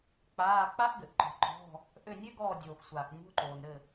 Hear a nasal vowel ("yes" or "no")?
no